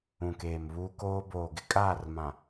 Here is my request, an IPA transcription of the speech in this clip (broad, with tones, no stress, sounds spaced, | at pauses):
ũ˨ k eː˨ m β uː˦ k oː˦ b oː˨ ɡ ɪ˦ kʼ aː˦˨ r m ã˨